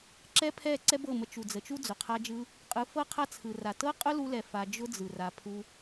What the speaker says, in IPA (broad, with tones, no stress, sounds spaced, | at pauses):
ǁ ɛ˦ pʰ ɛ˦˨ ǀ ɛ˦ b ɤ˦˨ m ə˧ t͡ʃ u˨ d͡z ə˨ t͡ʃ u˦ d͡z ʊ˨ qʰ a˦ d͡ʒ ɯ˦ | qʼ ɯ˨˦ f ɤ˦ qʰ a˦ t͡sʰ ɯ˨ r a˨ t ɤ˦ qʼ ʊ˦ l u˧ l ɛ˨ f a˧ d͡ʒ ʊ˦ d͡z ɯ˨ r a˧ pʰ u˦